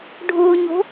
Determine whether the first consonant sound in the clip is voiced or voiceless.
voiced